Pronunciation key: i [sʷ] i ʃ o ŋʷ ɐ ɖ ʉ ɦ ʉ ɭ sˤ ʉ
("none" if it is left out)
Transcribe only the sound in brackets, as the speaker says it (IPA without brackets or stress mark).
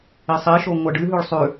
sˤ